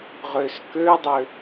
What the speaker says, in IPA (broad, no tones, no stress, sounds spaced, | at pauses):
ʁ ø s k ø dˤ ø